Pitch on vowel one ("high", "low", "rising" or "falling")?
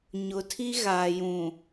low